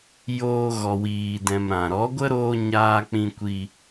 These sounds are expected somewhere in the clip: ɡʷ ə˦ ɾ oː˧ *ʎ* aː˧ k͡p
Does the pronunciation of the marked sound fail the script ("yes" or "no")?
yes